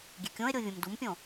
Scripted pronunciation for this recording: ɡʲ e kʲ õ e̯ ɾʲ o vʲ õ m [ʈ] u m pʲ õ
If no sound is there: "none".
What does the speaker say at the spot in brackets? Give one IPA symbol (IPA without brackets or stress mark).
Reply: d